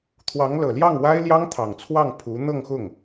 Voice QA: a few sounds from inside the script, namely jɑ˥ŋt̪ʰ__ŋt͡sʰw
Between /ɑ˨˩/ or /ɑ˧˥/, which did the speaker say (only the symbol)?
ɑ˨˩